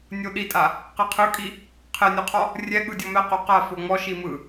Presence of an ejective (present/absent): present